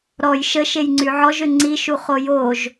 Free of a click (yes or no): no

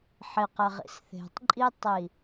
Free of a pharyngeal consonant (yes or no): no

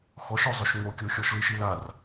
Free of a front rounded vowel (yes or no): no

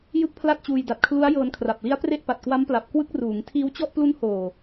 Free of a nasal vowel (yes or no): yes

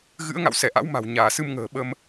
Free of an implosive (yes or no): no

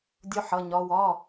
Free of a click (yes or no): yes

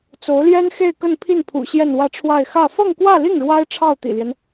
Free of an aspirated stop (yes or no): no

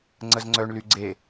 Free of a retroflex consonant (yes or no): no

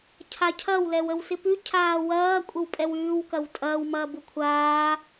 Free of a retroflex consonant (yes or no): yes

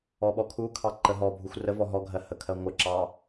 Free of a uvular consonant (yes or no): yes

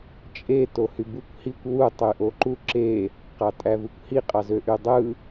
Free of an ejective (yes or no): no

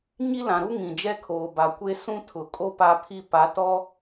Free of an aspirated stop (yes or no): no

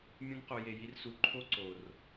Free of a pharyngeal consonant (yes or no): yes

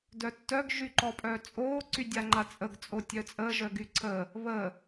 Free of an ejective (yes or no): no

